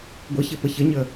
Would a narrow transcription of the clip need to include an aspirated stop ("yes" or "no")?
no